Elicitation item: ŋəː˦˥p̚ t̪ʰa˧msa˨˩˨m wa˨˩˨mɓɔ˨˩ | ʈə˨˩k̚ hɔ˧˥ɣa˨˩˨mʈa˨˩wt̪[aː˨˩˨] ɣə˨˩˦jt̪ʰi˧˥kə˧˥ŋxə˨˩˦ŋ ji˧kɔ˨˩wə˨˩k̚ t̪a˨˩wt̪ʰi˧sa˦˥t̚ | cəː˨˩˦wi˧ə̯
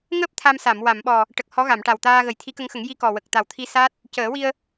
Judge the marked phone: incorrect: aː˧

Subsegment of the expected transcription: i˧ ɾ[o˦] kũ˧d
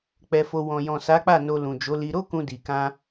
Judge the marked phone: correct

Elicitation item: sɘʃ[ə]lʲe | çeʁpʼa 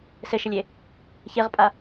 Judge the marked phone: correct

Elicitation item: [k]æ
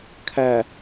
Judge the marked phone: incorrect: kʰ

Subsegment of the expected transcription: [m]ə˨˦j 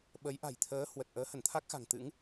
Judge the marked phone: incorrect: ɓ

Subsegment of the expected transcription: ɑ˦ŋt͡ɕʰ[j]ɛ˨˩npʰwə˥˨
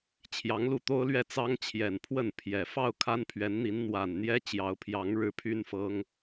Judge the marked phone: correct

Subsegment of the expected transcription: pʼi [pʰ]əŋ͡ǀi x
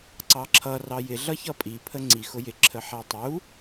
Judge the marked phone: correct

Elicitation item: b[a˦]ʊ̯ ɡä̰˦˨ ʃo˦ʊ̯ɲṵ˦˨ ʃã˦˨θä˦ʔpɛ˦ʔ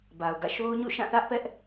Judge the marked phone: incorrect: a˨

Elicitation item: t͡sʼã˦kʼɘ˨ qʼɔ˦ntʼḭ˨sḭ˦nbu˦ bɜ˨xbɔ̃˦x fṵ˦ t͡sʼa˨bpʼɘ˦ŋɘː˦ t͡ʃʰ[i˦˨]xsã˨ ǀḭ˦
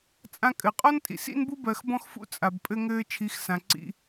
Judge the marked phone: incorrect: i˨˦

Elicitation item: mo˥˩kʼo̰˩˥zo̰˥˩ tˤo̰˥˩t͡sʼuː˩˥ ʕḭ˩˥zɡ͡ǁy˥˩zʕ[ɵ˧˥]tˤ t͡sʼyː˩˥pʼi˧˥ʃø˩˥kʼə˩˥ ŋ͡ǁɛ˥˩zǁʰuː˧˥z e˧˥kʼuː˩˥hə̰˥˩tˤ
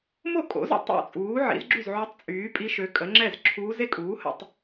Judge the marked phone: incorrect: ø˧˥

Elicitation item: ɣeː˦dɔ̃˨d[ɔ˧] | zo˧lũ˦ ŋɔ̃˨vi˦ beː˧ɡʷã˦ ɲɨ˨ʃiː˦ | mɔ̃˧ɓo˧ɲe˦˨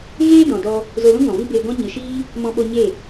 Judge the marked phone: correct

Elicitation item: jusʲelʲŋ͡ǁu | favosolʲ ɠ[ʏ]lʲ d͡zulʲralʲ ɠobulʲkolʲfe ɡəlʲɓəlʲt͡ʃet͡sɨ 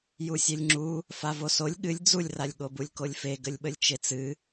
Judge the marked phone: incorrect: ɨ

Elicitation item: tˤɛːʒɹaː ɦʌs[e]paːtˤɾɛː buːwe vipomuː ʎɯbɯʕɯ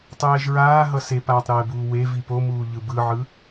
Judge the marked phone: correct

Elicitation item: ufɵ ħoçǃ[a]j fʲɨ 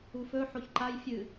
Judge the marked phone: correct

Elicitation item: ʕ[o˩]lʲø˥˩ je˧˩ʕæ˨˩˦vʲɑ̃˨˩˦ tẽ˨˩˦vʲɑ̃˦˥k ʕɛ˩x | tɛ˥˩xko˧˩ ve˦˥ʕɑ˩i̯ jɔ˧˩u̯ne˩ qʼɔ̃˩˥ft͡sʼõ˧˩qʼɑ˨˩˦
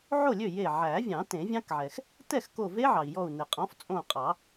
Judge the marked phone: incorrect: o˥˩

